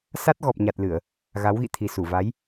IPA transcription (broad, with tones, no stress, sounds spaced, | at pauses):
s a˦˥ t̚ ɣ ɔ˨˩ p̚ ɲ a˨˩ t̚ l ɨ˧˩˨ ə̯ | ɣ a˨˦ w ɣ ḭ˧˨ t̪ʰ i˨˩ s u˧˩ v a˨˦ j